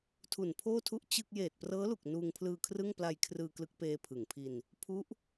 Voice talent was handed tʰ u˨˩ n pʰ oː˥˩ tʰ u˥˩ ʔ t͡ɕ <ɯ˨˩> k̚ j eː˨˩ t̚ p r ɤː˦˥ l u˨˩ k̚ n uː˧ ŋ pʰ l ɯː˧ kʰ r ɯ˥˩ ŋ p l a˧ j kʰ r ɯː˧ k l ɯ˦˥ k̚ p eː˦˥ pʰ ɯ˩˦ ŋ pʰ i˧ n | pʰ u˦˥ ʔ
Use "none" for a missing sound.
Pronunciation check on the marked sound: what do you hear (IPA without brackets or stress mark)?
ɯ˥˩